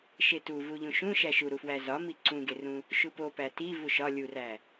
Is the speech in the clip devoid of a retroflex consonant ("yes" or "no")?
yes